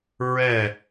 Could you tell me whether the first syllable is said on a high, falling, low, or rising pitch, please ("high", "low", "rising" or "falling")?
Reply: falling